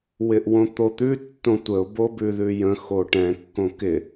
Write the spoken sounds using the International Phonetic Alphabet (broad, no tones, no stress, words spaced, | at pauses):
wɪʔwõt̪ot̪ʉ tːõtʷəʊ̯ bobʉðʉjə̃ xoʈɛ̃ kːõkɪ